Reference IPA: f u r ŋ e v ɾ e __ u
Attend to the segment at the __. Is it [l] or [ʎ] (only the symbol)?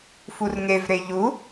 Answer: ʎ